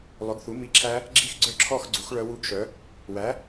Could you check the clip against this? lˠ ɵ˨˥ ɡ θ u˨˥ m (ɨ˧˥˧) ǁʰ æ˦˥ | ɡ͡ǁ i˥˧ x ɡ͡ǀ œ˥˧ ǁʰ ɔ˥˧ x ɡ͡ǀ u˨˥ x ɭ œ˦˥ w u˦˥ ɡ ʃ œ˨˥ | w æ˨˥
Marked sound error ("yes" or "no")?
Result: yes